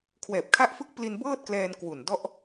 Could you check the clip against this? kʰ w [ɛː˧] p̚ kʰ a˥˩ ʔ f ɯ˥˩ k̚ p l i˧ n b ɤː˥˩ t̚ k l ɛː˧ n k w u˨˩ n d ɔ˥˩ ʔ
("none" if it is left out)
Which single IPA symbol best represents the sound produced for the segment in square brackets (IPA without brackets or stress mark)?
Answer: ɛː˨˩